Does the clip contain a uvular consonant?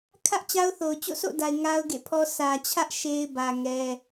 no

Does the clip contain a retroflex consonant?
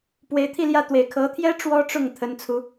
yes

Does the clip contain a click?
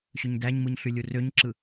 yes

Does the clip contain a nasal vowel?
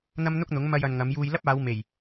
no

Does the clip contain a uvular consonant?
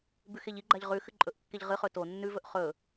yes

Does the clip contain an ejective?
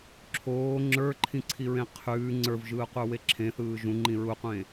no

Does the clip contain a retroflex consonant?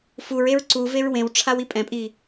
yes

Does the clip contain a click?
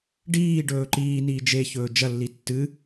yes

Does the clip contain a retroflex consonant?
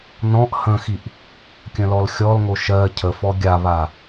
no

